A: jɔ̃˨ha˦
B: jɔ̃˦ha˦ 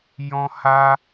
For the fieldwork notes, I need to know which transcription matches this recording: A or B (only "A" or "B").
B